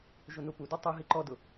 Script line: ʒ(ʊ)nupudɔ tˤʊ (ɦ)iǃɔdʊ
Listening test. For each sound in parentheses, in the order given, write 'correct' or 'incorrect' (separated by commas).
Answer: correct, correct